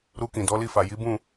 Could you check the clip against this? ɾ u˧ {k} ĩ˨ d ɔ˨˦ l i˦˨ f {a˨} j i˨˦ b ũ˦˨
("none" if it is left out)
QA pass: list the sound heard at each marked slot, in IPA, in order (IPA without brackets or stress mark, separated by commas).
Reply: k, a˨